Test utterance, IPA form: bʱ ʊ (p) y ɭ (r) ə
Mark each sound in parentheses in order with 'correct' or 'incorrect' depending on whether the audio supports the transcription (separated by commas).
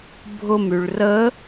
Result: incorrect, correct